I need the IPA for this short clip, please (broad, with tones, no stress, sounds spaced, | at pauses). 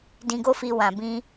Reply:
d ĩ˧ ɡ o˦ f i˧ w ã˨ b ĩ˧